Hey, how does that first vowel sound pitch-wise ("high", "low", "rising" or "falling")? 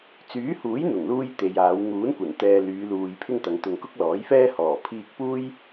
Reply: rising